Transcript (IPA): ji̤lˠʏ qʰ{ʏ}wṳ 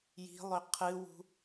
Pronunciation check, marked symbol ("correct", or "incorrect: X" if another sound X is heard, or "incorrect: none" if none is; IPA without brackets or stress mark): incorrect: ɨ